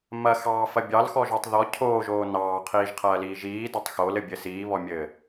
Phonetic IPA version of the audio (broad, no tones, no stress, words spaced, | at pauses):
mɐxɑːfɐ bʲɑlxɔʒotˤ ðɔ cʰoːʒoː nɑːqʰiːʒqʰɐːliː ʒiːdɐtˤ xolɘbʲɘ siːβɔmʲɘː